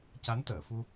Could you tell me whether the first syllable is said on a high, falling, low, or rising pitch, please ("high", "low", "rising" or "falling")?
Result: rising